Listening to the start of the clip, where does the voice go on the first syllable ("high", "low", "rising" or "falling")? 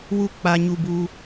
high